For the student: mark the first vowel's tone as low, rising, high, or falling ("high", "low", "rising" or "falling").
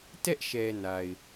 high